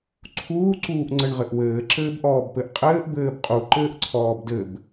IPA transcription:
ǀʰuːǀuːʔŋ͡ǀɘɳʁɘʔ wɘːǁɘːbʔɔːbpɘʔ qʼɘːʔbɘːb qʼuǃɘːʔǀʰɔːb dɘb

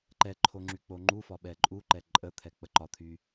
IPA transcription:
ǃɛǃʰo ŋ͡ǁyk͡poŋ͡ǃufɒ ɓɛǃʼuǃɛ ǃʼət̪ʰɛ k͡pəǃɒt̪ʰy

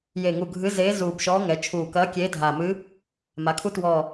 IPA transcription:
je˨˩ŋu˨˩ ɡʱɨ˧˥zeː˧˥ zuː˨˩bʃɔː˧˥ŋɛ˩˧ t͡ʃʰuː˨˩kɐː˧˥ kʲeː˧˥dʱaː˨˩ mɨː˧˥ | ma˩˧kʰu˧˥twɔː˨˩

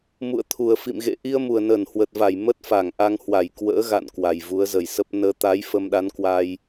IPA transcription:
mṵ˧˨ə̯t̪ʰu˨˩ə̯fḭ˧˨m ɣḛ˧˨ ʔi˧ə̯ mu˨˩ə̯nəː˧˩nhwəː˨˩t̚va˧˩j mə˦˥t̚fa˧˩ŋʔa˧ŋ hwa˧˩jkwə̰ː˧˥ɣa̰˧˨n kwa˨˩jvu˨˦ə̯zə˨˩jsə˦˥p̚ nəː˨˦t̪a˨˦j fə˧mɗa˨˦nkwa˧j

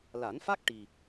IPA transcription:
la˨˩˦nfa˦˥k̚ ʈi˨˩

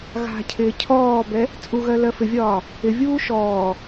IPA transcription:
ɣa̤cʰɪː cʰɔːbɛ | t͡sʼuɣɜ lɜfɪvʲɒː | ɪvʲuː ʃɔː

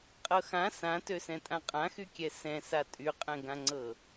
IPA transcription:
qʼɤxã sãtøsɛ̃ tʼãqʼãxykʲɛ sɛ̃sa tʼyqʼɛ̃ɡãŋ͡ǀɤ

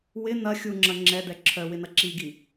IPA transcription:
wɪ n̪ɐ xʲuŋ͡ǁɐ ŋ͡ǁɛd̪ɛ ǁʰœwɪn̪ɐ ǁiɡi

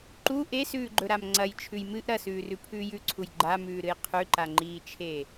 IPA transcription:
ǃu ʔesʉːɡ͡ǃɵɾam ŋ͡ǀɐjt͡ʃʰʉj mɨʔ ɾɐsʉːrʉpʰʉːj ʉǀʰuj ɡ͡ǃamʉːɾɨj qʰʉǃaŋ͡ǃiːt͡ʃʰe

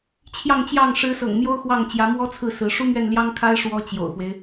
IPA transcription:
t͡ɕʰjɑ˥˧ŋt͡ɕjɑ˥˩ŋ ʂɻ̩˧˥sɤ̰˨˩ŋ mjo˥ʊ̯xwɑ˥˩ŋ t͡ɕjä˧˥mwɔ˥t͡sʰɹ̩˥˩ sɹ̩˧˥ ʂu˥mɥɛ˥˩nljɑ˥ŋkʰa˥ɪ̯ ʂwɔ˥ t͡ɕjo̰˨˩ʊ̯fwe˦ɪ̯

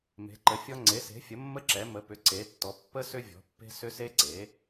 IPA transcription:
me̤˩˥ǃə˩˥fʲɔ˦˥ ŋ͡ǀe˩˥se̤˩˥fʲə˩˥ mːə˦˥ǁɛ˩˥ mə˩˥pʏ˩˥ ǀe˩˥tːɔ˩˥ pːə˦˥ sʏ˦˥vʲɔ̤˩˥pːe̤˦˥ sʏ˦˥se˦˥ǀe˩˥

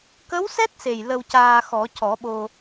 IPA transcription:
kə˧˥wsɛ˦˥t̚se˨˩j lə˧wcaː˧ xɔ˨˩˦cɔ˨˩˦ɓo˧

